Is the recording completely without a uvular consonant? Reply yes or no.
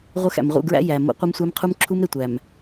no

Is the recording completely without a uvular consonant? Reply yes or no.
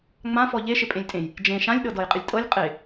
no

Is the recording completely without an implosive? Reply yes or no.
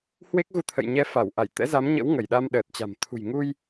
no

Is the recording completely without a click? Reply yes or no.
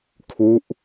yes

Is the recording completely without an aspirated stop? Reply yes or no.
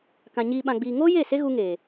yes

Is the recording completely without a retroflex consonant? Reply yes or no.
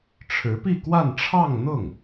no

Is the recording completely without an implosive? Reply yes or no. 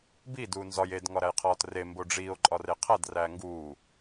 yes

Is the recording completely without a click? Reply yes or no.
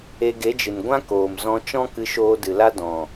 yes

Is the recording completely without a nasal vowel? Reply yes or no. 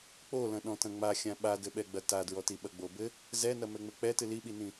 no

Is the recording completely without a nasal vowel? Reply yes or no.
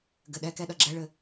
yes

